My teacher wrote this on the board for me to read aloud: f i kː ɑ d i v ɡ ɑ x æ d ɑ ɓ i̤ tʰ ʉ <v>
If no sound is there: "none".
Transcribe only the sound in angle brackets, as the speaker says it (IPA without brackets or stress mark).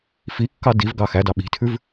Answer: v